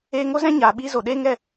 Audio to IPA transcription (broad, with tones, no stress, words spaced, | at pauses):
eː˧ŋo˦zɛ̃˦ ɲaː˨ɓiː˦zo˨ ɗeː˦ŋɛ˦˨